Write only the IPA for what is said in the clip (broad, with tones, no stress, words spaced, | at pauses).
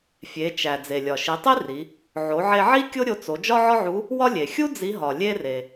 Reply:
fʲe˩˧t͡ʃæ˩ d͡ze˩lʲɒ˩ ʃi˩˧tˤi˥ ri˩˧ | ʕo˩˧ʕe˧ʕi˥ kʲo˥ɾʲo˧t͡so˩˧ d͡ʒɒ˥ʕɒ˥ʕu˧˥ | wɒ˥lʲe˩ xʲu˥ d͡zi˧˥ɦɒ˩ lʲe˥re˩